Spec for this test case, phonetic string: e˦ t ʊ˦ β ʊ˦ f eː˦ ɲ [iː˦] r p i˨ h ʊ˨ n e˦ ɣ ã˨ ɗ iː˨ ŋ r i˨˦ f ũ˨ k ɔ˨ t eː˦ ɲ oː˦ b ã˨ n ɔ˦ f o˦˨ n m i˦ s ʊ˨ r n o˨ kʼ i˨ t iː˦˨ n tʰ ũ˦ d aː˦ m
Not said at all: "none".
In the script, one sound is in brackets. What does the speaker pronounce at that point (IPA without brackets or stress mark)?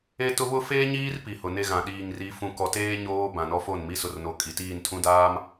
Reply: iː˦